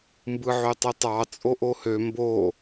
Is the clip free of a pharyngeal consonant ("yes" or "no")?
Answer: no